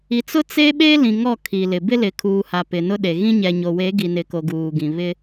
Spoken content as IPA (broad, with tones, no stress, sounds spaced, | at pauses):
i˨ t͡s ʊ˦ t͡s e˦ ɓ e˦ l ĩ˨ ŋ ɔ˦˨ kʰ i˨ l ɪ˨ b ɪ˦ l ɪ˨ kʰ uː˨ h a˨ p ɪ˨ n ʊ˦ ɗ e˨ ɣ ĩ˦ ɲ ɛ˨ ɲ o˨ w e˨˦ ɡ i˨ n ɪ˨ k o˨ ɡ uː˨ ɡ ĩ˨ β ɪ˦